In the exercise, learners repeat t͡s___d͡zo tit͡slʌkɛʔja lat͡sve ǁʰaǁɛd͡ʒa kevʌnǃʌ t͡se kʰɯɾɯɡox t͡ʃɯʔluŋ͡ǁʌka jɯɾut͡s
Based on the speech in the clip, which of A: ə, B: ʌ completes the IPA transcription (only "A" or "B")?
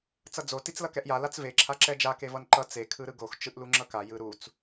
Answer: B